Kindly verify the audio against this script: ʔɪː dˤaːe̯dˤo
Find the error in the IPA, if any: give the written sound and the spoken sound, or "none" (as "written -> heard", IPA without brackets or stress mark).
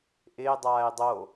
none